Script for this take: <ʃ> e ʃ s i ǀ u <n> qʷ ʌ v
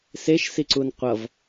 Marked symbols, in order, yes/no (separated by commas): no, yes